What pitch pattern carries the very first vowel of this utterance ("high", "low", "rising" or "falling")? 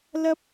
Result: high